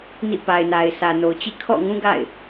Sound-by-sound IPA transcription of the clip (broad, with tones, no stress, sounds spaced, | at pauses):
n ḭ˦˨ p a˨ ɪ̯ n a˨ ɪ̯ sʰ ä˨ n o˨ ʊ̯ t͡ɕ ḭ˦˨ kʰ ɔ̰˦˨ ŋ ũ˦ ɡ a̰˦˨ ɪ̯